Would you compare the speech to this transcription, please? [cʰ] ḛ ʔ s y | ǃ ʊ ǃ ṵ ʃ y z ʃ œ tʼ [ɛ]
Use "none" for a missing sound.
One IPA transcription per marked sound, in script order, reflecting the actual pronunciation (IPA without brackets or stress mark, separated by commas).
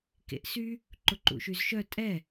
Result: k, ɛ